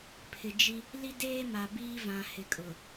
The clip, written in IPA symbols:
pʰ ɪ˨ d͡ʒ i˦ | l i˦ d eː˦ m a˨ b iː˦ v ã˨ h ɪ˨ kʼ ʊ˨

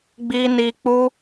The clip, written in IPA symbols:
ɡ͡b i˦ n i˦ k͡p u˦

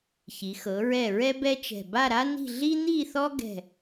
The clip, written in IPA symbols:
ç i˩˧ x ɤ˩˧ ɹ ɛ˧˩ ɹ ɛ˥ b ɛ˥ t͡ʃ ɛ̤˧˩ b a˥˧ ɾ a˥ n i̤˥˧ ɮ i˥ n̪ i˥˧ θ ɔ˥ ɡ ɛ̤˥˧

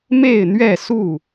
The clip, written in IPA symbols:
m e˥˨ ɪ̯ n̪ ɥ ɛ˥˨ s u˥˨

